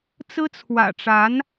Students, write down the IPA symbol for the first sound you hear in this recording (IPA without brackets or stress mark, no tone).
t͡s